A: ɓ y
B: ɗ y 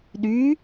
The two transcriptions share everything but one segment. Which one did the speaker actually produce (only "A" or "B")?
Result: B